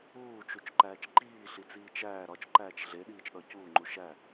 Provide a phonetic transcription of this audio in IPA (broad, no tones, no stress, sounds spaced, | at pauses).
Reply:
uː t͡ʃ u t͡ʃ ǃ æː t͡ʃ ǃ iː ɬ i t͡s iː t͡ʃ æː ɾ ɒ t͡ʃ ǃ æː t͡ʃ ɮ e ɗ iː t͡ʃ ɗ ɒ c uː ŋ͡ǃ u ʃ æ